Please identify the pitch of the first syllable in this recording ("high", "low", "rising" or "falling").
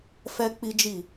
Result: high